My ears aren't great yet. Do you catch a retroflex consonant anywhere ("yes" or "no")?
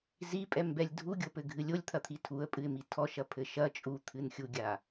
no